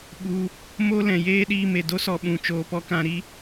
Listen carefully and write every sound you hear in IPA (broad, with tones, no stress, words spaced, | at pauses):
ɓu˧ | mo˦ lɛ̃˨jeː˦ ɗiː˧me˨ do˦sɔ˧ ɓũ˨ t͡ʃoː˨pɔ˧ kã˧ɾi˦